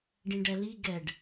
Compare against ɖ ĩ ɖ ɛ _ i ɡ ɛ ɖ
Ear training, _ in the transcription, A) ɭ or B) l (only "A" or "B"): B